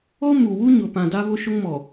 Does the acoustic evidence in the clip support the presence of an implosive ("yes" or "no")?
no